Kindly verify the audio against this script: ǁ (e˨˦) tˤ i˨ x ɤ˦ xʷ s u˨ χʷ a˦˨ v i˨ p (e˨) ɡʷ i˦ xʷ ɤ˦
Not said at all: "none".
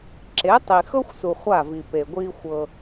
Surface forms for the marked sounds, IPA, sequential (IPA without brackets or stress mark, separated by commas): e˨˦, e˨